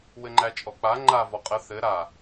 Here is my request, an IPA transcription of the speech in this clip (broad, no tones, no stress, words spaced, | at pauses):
wɘŋ͡ǃæt͡ʃʼɔk͡pa ŋ͡ǃa vɔqʼə θɘ ɾa